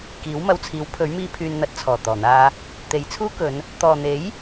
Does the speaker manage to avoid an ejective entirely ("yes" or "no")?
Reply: yes